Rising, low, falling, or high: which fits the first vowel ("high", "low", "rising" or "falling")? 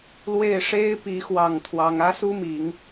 falling